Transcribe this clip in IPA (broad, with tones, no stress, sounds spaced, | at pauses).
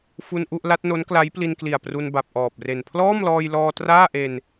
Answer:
f u˧ n ʔ u˥˩ ʔ l a˦˥ t̚ n o˦˥ n k l a˦˥ j p l i˧ n k l i˨˩ a̯ p r u˧ n b a˨˩ p̚ ʔ ɔː˨˩ p̚ r e˨˩ n pʰ l ɔː˥˩ m l ɔː˧ j l ɔː˧ t r aː˥˩ ʔ e˧ n